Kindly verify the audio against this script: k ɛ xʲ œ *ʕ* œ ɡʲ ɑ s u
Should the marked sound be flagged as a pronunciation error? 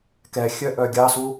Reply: yes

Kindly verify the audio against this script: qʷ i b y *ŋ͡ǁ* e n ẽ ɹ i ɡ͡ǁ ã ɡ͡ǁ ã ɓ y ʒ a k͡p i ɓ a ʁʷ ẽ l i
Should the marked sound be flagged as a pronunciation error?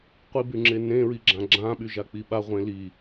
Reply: no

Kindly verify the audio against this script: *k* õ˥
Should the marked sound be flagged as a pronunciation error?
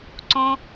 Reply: yes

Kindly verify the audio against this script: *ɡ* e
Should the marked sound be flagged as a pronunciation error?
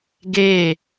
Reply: no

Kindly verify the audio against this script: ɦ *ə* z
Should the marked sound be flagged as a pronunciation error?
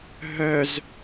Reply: yes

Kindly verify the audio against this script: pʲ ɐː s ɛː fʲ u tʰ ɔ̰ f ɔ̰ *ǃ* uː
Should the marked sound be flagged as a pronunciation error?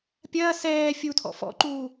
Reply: no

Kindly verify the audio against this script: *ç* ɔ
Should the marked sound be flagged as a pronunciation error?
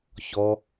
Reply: no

